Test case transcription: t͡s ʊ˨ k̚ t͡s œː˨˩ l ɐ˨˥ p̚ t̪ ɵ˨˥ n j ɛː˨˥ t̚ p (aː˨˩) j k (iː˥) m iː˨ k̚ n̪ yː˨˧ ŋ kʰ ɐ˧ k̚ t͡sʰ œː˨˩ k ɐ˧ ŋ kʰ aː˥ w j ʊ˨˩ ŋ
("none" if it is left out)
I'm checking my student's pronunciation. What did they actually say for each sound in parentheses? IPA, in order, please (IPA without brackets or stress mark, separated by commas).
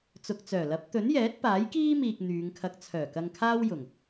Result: aː˨˥, iː˥